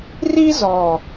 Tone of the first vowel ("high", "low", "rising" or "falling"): high